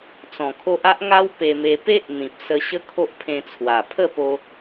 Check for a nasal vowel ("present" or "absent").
present